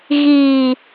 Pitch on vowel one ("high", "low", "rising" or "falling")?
low